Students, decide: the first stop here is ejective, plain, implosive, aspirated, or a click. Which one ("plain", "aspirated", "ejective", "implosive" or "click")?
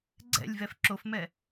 click